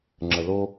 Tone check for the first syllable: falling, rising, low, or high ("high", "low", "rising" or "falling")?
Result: low